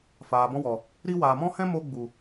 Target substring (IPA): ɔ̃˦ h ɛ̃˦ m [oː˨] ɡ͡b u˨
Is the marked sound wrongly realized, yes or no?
yes